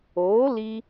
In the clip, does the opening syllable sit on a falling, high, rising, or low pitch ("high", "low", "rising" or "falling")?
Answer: rising